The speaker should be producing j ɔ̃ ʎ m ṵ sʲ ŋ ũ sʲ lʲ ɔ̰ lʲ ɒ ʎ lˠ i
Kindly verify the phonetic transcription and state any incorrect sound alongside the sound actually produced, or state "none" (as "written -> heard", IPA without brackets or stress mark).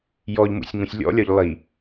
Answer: ɔ̃ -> ɔ